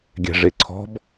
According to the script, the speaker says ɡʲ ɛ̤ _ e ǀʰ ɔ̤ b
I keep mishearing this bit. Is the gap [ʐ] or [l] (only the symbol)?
ʐ